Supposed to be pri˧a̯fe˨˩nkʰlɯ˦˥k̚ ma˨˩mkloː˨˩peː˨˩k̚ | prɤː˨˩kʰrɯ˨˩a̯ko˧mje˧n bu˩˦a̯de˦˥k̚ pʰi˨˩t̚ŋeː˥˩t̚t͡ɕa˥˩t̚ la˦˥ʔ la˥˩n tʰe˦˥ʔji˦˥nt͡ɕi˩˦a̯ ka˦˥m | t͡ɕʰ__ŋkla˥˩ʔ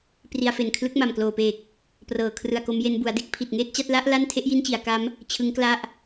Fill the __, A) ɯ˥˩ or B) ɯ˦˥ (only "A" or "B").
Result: B